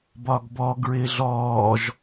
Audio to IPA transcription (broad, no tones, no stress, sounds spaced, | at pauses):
b ɒ ɡ b ɔ ɡ ɹ ɪː ɮ ɔː ʒ